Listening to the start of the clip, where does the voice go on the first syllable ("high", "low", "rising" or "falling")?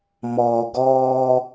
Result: low